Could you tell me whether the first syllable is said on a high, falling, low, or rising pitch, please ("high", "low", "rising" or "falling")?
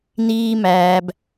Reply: low